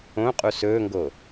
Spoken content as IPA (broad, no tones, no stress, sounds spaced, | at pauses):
õ qʼ u s ɵː ŋ ɡ o